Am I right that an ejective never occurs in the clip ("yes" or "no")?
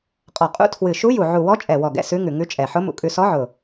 no